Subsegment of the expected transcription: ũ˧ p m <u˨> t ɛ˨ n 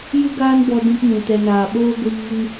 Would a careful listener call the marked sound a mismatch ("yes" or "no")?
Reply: yes